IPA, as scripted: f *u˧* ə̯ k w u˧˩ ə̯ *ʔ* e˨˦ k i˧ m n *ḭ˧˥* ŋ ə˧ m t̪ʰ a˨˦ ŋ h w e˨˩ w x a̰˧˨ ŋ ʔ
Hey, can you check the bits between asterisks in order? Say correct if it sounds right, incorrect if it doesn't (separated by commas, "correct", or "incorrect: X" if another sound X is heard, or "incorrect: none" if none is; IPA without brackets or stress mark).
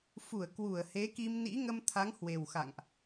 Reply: incorrect: u˧˩, incorrect: h, correct